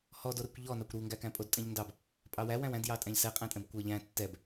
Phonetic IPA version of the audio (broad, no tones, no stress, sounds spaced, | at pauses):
h ɔ d o ɾ ɛ kʷ ʎ ɔ n ɑ kʷ ɾ u ŋ ɡ æ k æ̃ pʼ o d tʼ ɛ̃ ʎ n d ɑ b | pʼ ɑ w æ w æ̃ w æ̃ d j ɑ tʼ æ̃ ʎ s ɛ qʼ æ̃ tʼ ɛ̃ b kʷ æ ʎ æ̃ tː ɛ b